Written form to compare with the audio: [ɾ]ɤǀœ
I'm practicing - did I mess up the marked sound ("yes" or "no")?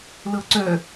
yes